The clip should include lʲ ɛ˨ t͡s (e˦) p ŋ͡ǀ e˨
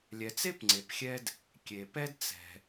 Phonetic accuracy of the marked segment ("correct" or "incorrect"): incorrect